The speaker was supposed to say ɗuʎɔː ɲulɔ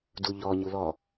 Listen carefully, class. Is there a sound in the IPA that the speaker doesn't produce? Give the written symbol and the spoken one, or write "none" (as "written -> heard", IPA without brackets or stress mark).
ɗ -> d